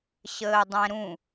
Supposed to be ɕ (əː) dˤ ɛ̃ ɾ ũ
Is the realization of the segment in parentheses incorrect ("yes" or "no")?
no